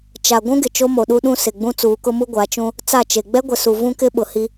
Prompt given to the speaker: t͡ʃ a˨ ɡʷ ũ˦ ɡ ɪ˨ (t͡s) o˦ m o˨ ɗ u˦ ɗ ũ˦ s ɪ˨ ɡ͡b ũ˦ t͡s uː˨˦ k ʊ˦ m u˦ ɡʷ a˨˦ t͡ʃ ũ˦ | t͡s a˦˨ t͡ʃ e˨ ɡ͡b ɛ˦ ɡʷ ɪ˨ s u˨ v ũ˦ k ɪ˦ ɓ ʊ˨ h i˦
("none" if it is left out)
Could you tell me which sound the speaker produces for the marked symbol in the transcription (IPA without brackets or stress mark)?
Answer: t͡ʃ